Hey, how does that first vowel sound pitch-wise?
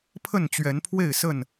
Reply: falling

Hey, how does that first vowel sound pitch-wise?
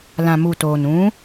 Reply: low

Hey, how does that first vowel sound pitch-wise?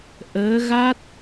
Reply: rising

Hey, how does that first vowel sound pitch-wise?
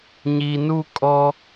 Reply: low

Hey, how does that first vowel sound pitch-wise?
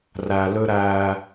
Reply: low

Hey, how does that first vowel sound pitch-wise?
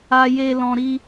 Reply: high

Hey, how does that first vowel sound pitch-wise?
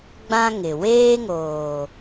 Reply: high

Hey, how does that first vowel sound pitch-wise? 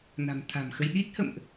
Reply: low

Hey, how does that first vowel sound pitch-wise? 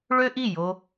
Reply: high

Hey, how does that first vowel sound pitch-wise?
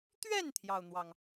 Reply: falling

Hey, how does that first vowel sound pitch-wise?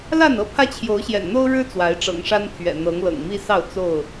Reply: falling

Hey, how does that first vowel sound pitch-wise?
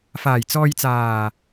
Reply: low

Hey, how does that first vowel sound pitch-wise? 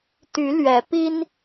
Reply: rising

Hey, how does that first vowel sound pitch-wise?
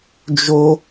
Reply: high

